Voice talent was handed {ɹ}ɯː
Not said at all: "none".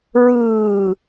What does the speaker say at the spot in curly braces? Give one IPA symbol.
ɹ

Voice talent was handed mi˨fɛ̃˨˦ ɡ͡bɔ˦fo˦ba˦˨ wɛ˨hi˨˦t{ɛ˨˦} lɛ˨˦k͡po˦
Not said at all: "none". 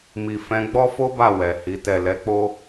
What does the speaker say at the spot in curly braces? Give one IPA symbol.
ɛ˦˨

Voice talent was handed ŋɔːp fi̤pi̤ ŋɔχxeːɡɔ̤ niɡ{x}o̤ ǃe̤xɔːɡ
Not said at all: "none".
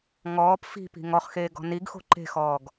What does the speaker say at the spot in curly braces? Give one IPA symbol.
x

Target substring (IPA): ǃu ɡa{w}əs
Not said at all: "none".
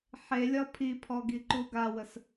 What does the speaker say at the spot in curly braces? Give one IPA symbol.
w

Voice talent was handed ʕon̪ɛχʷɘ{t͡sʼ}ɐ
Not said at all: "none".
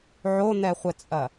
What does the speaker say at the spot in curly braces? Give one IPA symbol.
t͡sʼ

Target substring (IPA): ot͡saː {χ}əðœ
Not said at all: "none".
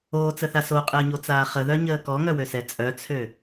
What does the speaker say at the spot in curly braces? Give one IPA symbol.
χ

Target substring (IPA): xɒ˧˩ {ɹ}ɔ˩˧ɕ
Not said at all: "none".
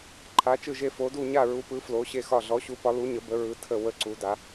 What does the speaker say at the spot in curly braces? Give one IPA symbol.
ɮ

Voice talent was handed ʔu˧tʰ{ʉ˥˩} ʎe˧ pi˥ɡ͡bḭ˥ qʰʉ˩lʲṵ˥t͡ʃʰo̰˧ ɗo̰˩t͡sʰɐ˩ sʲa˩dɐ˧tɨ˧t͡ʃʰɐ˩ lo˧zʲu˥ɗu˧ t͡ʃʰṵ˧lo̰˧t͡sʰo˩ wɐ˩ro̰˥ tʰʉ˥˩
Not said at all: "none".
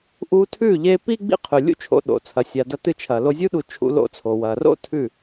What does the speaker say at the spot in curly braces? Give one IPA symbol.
ʉ˥˩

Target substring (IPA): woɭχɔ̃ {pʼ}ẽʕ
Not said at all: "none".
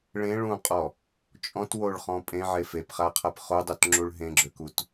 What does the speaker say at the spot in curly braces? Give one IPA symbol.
pʼ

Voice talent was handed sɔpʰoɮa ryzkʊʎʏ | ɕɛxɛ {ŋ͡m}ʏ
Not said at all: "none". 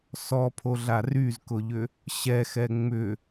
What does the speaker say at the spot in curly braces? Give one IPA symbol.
ŋ͡m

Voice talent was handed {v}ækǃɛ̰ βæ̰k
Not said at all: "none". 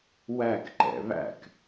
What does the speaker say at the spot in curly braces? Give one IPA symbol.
w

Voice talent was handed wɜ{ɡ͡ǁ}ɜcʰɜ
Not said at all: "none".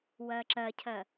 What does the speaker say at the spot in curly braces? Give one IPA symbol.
ǁ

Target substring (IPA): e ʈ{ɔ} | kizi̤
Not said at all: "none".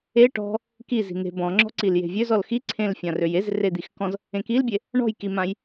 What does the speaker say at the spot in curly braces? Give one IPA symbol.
ɔ̤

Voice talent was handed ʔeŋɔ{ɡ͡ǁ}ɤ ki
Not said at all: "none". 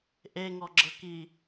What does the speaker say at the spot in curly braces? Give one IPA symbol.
ɡ͡ǁ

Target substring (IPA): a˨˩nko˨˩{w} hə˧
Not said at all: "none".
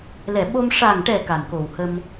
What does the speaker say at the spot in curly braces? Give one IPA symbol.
w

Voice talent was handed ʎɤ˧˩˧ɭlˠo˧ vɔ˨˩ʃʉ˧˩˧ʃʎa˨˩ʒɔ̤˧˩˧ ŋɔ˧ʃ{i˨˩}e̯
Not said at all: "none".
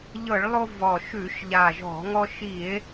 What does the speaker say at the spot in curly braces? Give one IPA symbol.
i˧˩˧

